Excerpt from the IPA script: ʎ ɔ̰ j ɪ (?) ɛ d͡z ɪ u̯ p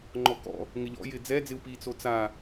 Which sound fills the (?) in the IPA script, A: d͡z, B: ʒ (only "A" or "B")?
A